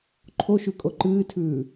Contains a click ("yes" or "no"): yes